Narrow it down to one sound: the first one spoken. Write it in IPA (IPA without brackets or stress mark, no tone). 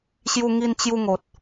ɕ